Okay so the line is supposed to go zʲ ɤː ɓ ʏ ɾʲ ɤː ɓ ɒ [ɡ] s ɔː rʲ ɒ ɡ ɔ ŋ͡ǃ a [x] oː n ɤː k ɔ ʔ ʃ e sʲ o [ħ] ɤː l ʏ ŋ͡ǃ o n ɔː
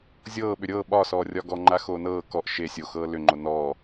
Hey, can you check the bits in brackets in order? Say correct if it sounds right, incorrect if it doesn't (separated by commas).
incorrect, correct, incorrect